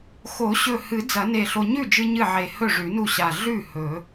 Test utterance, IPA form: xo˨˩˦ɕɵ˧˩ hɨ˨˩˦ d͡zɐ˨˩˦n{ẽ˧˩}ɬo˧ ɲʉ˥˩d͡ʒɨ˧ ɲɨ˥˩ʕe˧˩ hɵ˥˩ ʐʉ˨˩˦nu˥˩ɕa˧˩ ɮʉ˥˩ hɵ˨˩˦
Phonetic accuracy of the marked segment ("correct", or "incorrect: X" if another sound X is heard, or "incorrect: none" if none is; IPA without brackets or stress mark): incorrect: e˧˩